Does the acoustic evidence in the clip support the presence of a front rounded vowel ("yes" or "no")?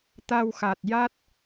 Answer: no